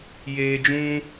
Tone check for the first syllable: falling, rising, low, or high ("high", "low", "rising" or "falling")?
low